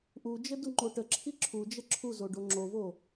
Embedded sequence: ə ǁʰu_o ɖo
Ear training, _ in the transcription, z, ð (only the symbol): z